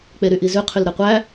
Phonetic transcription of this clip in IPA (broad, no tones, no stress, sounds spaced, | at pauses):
k͡p e ɾ y ʔ i z ʉ qʰ y l ɾ e qʷ æ